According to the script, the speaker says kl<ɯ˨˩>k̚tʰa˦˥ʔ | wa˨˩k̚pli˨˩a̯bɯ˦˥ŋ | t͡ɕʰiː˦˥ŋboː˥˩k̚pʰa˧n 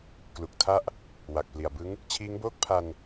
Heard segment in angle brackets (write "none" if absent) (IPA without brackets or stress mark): u˨˩